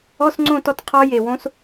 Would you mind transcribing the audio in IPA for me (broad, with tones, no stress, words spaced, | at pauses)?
ɔ˧˥˧sŋ͡ǀõ˦˨tɔ˦˨t qʰɔ˦˥ je˩wõ˦˥s